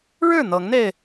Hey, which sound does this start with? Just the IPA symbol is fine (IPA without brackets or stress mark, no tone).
ɻ